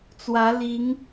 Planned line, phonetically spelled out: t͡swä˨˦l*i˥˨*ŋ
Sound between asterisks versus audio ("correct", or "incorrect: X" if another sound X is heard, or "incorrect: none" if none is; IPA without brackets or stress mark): incorrect: i˨˦